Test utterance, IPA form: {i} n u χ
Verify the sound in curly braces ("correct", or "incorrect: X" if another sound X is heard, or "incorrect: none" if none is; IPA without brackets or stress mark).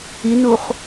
correct